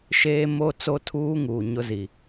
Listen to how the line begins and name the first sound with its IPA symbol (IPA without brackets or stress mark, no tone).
ʃ